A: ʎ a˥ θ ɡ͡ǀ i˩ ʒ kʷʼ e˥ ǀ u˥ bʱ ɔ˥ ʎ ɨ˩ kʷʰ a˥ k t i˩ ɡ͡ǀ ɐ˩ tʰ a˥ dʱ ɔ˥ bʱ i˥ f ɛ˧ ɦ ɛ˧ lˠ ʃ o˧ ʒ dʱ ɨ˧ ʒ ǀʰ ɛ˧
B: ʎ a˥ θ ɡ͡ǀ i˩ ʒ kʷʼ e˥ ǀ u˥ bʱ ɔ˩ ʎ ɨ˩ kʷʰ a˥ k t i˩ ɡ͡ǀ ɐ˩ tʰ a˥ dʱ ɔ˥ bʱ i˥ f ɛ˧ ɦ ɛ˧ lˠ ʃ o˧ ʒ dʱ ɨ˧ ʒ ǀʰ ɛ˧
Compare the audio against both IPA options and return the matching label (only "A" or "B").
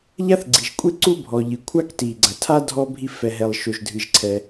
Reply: B